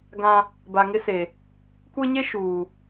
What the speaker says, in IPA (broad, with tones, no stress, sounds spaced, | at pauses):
ɡ ã˦ | b a˨ ŋ ɪ˦ s e˨ | kʷ e˦ ɲ e˦ ʃ uː˨